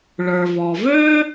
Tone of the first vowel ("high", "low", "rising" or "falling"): low